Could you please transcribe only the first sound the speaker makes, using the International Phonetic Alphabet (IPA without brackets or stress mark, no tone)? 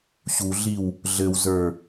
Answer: ɕ